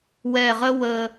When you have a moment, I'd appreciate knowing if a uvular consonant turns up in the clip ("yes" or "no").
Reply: yes